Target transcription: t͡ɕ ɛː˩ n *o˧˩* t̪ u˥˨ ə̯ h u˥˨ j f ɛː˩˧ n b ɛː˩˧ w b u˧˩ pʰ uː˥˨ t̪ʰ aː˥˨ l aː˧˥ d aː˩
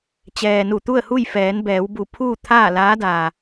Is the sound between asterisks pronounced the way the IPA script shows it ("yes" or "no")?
no